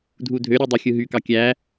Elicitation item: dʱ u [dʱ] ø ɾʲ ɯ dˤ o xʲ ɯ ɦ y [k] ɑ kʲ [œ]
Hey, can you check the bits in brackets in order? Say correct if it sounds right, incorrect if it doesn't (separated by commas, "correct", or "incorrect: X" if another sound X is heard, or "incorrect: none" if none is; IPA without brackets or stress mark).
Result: correct, correct, incorrect: æ